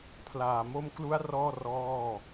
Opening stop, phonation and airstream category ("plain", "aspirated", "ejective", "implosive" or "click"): aspirated